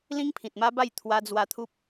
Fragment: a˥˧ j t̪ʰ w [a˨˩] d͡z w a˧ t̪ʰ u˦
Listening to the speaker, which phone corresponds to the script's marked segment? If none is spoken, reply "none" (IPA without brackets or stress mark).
a˧